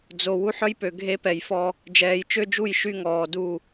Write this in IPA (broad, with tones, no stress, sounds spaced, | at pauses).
d͡z o˨ w u˦ ħ œ˦ j p ø˨ ɡʱ e˦ p ɛ˨ j f ɔ˦ | d͡ʒ ɛː˨ j t͡ʃ ø˦ d͡ʒ u˦˨ j ʃ y˦ ŋ ɔː˨ d u˦˨